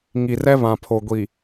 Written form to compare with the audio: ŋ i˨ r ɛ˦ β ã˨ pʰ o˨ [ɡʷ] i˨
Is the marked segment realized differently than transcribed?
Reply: no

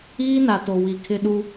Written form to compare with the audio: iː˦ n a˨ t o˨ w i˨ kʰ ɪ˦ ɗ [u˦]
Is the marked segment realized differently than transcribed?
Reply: no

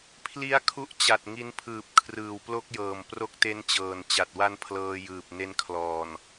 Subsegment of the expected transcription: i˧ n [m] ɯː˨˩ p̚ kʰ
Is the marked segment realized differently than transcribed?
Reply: yes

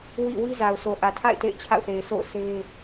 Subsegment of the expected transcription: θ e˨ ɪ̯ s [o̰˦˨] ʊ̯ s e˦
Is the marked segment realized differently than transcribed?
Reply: no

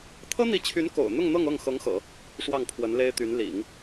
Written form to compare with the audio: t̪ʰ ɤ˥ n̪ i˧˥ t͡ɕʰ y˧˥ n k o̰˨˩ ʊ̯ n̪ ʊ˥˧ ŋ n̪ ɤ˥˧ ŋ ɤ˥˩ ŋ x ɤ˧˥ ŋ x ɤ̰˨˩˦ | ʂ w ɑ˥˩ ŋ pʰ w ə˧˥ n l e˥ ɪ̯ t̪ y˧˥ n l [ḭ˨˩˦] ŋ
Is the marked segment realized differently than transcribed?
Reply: no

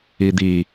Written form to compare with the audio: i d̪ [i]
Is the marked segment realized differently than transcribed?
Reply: no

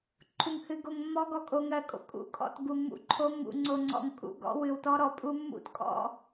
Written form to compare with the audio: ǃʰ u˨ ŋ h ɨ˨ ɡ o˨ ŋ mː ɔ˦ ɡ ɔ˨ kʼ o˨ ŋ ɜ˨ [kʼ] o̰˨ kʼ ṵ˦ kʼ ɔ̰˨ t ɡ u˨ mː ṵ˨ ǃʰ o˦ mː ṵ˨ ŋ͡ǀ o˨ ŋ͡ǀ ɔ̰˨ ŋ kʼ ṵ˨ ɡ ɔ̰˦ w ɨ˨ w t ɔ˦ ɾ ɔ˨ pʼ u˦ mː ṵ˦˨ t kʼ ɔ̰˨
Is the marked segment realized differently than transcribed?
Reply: no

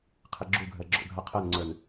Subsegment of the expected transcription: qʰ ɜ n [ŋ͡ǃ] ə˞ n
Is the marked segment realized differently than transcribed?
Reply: yes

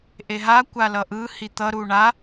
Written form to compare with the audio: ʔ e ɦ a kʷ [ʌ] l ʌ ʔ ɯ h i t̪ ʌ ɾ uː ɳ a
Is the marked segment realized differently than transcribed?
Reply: yes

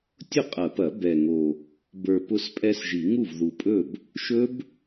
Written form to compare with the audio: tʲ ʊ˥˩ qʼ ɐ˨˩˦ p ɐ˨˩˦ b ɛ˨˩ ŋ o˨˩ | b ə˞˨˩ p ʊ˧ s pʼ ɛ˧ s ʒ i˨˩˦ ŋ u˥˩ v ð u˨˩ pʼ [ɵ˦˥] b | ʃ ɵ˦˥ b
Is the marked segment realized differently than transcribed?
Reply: yes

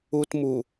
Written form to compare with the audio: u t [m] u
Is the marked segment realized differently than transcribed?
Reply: no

